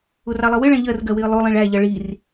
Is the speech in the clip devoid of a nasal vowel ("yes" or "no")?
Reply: no